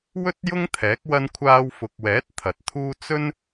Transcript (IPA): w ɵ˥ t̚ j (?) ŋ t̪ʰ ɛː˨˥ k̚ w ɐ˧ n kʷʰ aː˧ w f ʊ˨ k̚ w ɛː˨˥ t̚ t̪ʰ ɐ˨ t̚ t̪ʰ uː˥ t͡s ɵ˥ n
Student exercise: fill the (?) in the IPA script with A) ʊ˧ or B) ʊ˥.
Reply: B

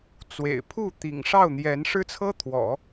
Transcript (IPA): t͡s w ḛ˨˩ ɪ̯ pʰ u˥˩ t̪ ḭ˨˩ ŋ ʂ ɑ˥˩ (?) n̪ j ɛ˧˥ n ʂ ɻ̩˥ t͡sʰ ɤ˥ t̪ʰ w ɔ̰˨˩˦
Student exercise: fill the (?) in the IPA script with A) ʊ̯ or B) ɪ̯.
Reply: A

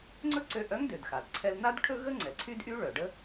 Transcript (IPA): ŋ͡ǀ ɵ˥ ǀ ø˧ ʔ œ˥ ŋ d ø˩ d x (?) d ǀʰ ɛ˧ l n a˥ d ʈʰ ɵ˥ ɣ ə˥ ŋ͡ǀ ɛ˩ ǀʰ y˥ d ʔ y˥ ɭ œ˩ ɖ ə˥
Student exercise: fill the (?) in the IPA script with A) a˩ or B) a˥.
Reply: A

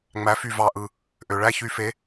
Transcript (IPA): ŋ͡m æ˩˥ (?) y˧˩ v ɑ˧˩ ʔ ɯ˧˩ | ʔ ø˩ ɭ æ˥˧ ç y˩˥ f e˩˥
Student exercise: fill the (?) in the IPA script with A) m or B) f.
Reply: B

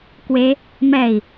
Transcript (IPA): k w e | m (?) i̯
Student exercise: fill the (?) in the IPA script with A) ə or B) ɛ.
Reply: B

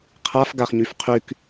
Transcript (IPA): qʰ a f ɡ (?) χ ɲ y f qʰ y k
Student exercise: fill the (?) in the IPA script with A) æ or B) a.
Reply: B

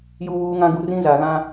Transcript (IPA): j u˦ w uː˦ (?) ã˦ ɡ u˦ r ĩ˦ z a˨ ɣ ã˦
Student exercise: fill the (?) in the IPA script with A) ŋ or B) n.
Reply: A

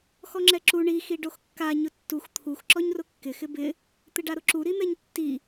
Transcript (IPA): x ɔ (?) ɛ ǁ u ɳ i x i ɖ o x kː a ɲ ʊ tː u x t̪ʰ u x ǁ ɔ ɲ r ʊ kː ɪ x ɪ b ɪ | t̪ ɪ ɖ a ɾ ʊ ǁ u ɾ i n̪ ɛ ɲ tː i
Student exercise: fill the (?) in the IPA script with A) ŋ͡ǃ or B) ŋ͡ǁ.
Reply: B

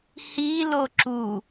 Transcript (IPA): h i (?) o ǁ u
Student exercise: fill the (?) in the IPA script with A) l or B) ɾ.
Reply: A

